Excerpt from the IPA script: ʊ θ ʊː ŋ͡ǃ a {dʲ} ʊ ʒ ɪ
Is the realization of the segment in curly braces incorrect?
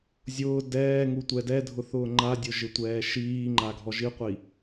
no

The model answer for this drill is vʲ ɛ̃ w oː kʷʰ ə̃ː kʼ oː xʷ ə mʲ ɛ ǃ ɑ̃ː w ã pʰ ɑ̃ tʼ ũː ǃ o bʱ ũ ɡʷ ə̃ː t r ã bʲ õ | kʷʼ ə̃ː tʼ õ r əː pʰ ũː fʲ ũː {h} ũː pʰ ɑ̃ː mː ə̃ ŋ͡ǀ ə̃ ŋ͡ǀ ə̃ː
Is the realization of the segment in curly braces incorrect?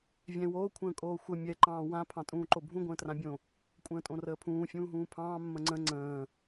yes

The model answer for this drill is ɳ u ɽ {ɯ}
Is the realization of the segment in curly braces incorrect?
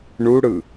no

